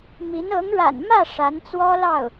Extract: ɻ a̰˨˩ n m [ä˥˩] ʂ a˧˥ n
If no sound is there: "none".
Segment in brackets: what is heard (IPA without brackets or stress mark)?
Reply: ä˥˩